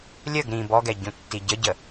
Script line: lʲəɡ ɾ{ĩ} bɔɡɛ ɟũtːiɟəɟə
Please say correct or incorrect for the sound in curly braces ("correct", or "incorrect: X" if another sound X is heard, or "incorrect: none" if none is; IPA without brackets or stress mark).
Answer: correct